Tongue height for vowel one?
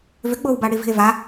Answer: high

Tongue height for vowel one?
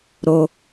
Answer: mid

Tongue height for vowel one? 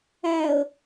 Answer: low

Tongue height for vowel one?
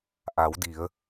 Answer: low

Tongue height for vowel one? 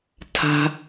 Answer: low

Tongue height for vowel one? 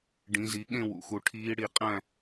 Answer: high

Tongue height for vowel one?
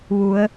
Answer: high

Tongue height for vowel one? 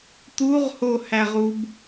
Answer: high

